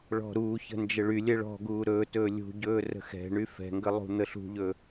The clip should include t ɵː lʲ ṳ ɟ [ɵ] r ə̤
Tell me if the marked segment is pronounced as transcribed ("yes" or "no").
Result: no